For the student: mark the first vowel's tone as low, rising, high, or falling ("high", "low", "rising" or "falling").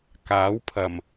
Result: rising